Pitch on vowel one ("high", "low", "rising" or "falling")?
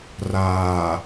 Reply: low